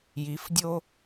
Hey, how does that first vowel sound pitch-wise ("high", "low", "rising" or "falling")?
rising